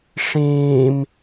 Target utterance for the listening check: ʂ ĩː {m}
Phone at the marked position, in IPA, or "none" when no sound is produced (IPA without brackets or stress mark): m